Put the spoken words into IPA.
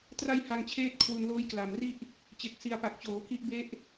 t r a˧ j h a˧ ŋ t͡ɕʰ eː˥˩ t̚ kʰ w u˧ n l oː˦˥ j k l a˨˩ m r i˥˩ ʔ | t͡ɕ e˨˩ k̚ s i˨˩ a̯ p a˨˩ k̚ t͡ɕ oː˩˦ k i˦˥ ʔ b e˦˥ ʔ

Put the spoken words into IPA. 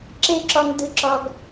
ǁ e˦ ǁ ɔ˧ ŋ d ɯ˧ ǁ ɔ˧ ɡ

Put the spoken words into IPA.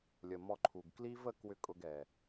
lʲ ə˨ m ɔ˧ ǃʰ u˨ ɡ k l i˦ v ə˦ k w ʏ˦ kʼ ʊ˧ ɡ ɛ˨

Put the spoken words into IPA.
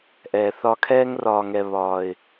ʔ ɛː˨ θ ɒ˧ kʰ ɛː˦ ŋ r ɒː˧ ŋ ɛ˧ β ɒː˨ ɪ̯

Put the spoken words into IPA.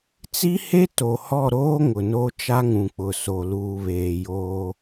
t͡s i˦ h e˦ t o˨ h ɔ˦˨ ɾ oː˦ ŋ ʊ˨ n o˦ t͡ʃ a˦ ŋ ũ˨ k͡p ʊ˨ s o˨ l uː˨ β eː˨ j oː˦

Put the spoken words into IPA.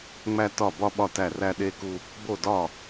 ŋ͡m æ˧ t ɒ˧˩ b ɒ˧ ɓ ɒ˧˩ t æ˧˩ r æ˧ ɗ e˧ k u˧ | b o˧˩ d ɒ˧˩

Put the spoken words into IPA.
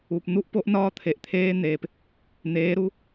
u˨ p n̪ u˦ ʔ p o˦ ʔ n ɒː˦ t̪ʰ e˨ ʔ t̪ʰ eː˦ n̪ eː˨ p | n̪ eː˨˦ ɾ u˦

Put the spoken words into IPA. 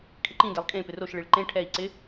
kʰ ɪ ǃ ĩ d ɛ lˠ kʼ ẽ p ɪ r o ʃ ɭ i ɭ ǃ ẽ ʈʰ ɛ i̯ ǀ ɪ

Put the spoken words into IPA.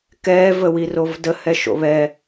k ɛː v ə w i r o v d ə h ɛ ʃ o̰ β ɛ

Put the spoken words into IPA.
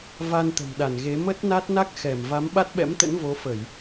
v a˧ n t̪ ə̤˨˩ m ɗ a˧˩ n ɣ e˨˦ m ə˦˥ t̚ n a˦˥ t̚ n a˦˥ k̚ x ɛ˧˩ m v a˨˦ m ɓ a˦˥ t̚ ɓ ɛ̰˧˥ m t̪ ə̰˧˥ n v o˨˦ f ə˧˩˨ j

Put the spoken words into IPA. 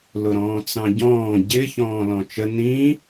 l ʊ ɾ ɔ̃ː t͡s ɑ̃ ɟ ɔ̃ː ɟ ɪ ç ɔ̃ː l ɔ̃ t͡ʃ ə n ĩ

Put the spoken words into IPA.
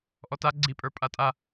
ʔ ɔ t a ɡ͡ǀ i pʼ ə˞ pʼ a tʼ a

